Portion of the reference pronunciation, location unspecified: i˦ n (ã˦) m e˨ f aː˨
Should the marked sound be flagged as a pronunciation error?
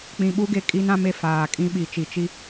no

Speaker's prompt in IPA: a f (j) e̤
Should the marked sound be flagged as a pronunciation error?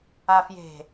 no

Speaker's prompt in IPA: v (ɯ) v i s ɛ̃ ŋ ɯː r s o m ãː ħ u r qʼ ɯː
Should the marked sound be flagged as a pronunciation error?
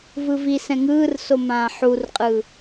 no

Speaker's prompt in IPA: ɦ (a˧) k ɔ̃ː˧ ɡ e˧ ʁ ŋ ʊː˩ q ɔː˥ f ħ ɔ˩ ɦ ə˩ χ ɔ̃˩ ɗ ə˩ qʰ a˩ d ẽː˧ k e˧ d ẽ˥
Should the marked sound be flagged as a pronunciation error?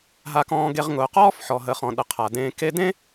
no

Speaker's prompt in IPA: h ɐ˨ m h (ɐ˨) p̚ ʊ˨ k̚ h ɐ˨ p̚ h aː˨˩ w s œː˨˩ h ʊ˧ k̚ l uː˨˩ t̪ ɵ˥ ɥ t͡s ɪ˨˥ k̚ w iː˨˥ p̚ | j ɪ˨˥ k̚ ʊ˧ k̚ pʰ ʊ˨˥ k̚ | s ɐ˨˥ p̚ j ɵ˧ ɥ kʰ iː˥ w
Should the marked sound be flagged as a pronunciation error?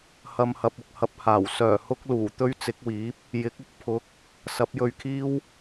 no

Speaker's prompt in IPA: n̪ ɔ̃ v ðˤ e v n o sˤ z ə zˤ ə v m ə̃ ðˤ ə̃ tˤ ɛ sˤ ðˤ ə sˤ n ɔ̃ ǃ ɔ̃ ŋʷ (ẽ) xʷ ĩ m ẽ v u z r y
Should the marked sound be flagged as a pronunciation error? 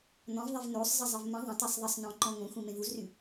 yes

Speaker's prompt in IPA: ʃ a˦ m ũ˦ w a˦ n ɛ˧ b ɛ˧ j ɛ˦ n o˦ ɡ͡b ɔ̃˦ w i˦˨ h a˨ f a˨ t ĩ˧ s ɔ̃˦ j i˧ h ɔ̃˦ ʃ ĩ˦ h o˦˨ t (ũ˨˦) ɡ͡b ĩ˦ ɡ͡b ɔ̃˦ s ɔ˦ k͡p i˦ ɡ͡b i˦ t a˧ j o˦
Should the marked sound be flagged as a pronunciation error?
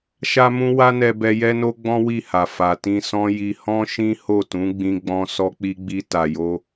no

